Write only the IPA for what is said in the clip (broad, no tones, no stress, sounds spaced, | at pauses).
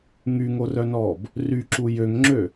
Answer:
ŋ y ŋ o r œ n ɔː b | r y ǁ u j ø ŋ ŋ͡ǁ ø